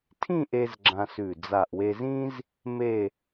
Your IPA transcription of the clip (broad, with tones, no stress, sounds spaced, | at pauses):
tʰ ĩ˥˧ ʔ e˧ z ɡ͡ǁ ã˧ s ʉ˧˩ d͡z a˧˩ ʔ w e˧ z ĩ˥ z | m e˥˧